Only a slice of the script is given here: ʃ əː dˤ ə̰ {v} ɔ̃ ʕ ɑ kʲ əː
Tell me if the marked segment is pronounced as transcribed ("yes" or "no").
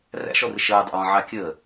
no